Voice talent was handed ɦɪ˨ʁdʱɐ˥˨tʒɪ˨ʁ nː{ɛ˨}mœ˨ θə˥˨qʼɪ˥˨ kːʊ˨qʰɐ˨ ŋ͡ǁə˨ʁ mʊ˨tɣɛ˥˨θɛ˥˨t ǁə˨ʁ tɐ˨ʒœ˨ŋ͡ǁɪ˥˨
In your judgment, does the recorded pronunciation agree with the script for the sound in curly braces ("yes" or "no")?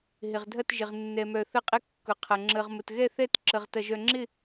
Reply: yes